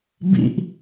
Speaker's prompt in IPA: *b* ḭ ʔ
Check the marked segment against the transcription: correct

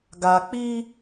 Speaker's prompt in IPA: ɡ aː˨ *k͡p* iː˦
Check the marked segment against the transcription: correct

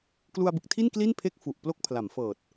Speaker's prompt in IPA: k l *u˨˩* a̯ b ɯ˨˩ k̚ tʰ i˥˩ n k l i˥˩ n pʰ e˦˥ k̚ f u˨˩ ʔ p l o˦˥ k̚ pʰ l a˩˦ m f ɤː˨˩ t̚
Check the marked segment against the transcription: incorrect: u˧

